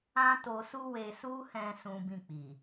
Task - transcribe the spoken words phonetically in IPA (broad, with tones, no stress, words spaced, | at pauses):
ã˦to˧su˦ we˧su˦hɛ̃˧ sũ˦bĩ˦˨ k͡pi˨